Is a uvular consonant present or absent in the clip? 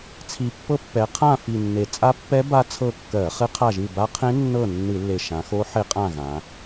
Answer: present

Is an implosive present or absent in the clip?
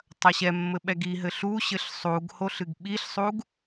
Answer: present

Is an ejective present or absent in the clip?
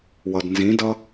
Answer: absent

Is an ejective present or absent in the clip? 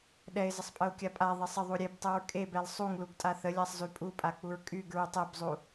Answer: present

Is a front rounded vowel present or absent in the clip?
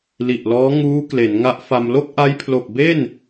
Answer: absent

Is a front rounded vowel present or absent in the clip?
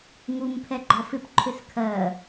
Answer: present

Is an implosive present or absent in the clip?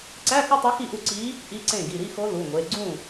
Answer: absent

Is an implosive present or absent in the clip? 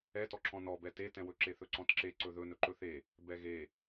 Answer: absent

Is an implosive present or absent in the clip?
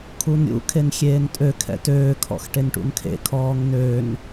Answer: absent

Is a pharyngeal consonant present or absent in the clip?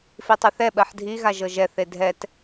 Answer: present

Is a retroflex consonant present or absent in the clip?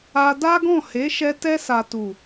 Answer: absent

